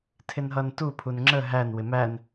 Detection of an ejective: absent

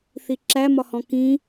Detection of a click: present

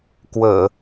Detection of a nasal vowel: absent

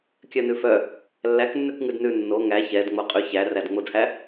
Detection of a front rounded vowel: present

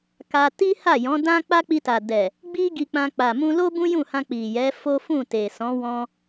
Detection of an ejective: absent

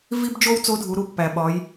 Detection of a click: absent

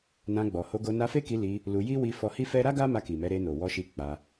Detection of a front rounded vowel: absent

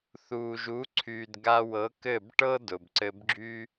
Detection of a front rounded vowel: present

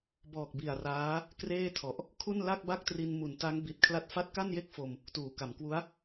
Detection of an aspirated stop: present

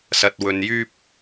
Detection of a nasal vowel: absent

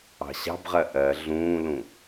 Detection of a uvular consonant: present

